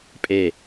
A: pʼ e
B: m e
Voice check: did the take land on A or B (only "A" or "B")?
A